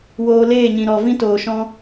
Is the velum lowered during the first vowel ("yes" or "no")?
no